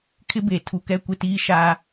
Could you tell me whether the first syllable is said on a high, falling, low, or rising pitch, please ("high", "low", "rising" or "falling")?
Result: high